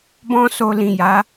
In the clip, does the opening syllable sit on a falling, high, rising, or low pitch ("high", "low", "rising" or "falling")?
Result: high